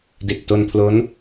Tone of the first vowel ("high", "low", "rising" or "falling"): low